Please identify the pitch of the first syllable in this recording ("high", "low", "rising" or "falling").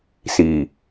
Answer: low